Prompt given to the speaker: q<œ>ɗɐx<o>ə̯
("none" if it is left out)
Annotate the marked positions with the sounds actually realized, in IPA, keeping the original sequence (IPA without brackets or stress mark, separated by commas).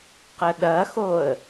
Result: ə, o